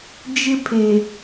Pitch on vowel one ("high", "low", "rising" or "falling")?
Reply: high